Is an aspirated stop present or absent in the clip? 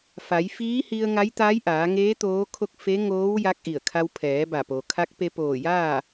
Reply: present